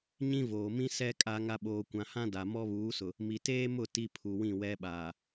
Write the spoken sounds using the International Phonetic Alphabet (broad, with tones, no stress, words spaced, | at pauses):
ɲĩ˦voː˨ mĩ˦sɛ˦ kʼa˦ŋa˦ ɓoː˨kʷã˨hã˦ da˨ mɔ˦βuː˨˦sʊ˨ | mi˨teː˦mʊ˦˨ ti˦pʰu˨wĩ˦˨ wɛ˦ɓaː˨